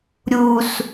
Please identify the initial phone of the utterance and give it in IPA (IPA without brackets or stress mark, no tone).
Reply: ɾʲ